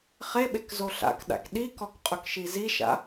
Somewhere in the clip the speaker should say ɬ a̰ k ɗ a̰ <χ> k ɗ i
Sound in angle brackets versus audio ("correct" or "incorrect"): incorrect